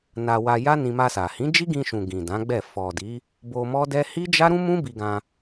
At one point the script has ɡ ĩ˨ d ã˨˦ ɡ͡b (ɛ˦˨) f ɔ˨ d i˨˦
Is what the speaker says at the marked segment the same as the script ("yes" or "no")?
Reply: yes